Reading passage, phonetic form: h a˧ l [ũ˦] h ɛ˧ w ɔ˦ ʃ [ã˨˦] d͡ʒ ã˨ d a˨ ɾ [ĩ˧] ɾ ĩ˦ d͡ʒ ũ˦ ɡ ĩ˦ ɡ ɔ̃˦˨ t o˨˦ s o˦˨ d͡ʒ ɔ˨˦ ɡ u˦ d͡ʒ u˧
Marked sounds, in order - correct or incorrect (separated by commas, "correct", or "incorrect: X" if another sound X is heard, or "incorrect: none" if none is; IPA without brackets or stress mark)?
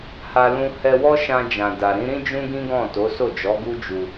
correct, incorrect: ã˧, incorrect: ĩ˨˦